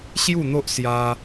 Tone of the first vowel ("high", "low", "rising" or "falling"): falling